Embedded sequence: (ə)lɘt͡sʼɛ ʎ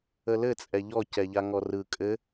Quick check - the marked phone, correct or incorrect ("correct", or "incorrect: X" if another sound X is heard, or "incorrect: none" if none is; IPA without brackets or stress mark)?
correct